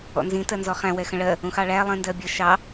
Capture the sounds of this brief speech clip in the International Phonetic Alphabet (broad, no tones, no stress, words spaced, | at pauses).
ɔ̰nzĩ tɜnzɔχæ̃ wɛxə̃ɭɜ | ũxɑɭæ lˠĩndɜbʲə ʃɑ